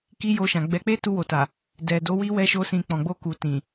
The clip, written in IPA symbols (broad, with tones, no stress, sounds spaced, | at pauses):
k i˦ j o˧ ʃ ã˨ ɡ͡b ɛ˧ k͡p e˦ t u˧ w o˨ t a˨ | d ɛ˨ d o˨˦ w i˦ w ɛ˦ ʃ o˦ s ĩ˧ k͡p ɔ̃˨ ɡ͡b o˧ k u˨ t ĩ˨